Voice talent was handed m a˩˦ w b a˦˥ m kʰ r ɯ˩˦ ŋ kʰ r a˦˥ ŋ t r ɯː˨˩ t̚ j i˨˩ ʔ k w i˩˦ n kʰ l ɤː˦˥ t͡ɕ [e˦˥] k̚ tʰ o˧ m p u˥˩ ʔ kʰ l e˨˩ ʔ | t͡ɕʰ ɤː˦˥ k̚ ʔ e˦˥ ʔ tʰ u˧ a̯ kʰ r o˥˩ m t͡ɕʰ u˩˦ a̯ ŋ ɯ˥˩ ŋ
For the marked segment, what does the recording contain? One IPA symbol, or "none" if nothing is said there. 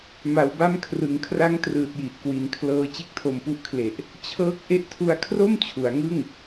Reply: e˥˩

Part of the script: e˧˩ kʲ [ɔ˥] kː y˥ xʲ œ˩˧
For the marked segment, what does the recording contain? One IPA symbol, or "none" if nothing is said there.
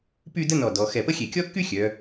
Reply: ɔ˥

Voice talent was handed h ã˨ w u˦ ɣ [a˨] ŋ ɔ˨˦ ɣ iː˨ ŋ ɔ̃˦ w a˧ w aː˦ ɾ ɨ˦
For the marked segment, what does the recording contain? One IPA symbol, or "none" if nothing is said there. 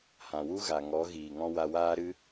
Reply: a˨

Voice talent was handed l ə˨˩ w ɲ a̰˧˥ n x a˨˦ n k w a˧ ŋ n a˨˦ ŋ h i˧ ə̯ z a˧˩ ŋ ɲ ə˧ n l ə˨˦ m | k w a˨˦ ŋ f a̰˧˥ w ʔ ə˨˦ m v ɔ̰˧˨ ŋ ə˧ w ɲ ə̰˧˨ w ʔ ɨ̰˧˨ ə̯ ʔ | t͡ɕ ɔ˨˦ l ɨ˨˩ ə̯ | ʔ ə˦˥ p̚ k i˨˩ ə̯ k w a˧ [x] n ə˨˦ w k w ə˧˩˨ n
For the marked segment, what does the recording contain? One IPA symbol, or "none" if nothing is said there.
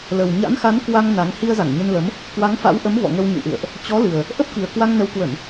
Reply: ŋ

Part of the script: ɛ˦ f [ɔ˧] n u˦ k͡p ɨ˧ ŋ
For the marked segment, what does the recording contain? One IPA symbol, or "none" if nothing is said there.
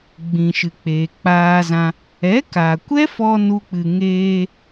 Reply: ɔ˧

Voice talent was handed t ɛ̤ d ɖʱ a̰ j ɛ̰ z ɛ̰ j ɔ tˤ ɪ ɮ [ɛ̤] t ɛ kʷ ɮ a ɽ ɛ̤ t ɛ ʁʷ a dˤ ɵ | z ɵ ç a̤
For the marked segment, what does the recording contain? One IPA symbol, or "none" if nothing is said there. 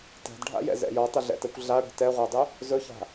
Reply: ɛ̰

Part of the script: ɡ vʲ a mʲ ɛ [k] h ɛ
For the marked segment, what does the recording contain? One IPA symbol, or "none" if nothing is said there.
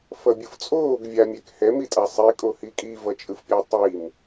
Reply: k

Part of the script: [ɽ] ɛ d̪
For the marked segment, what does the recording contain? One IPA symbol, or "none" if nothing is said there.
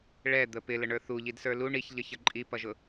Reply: ɭ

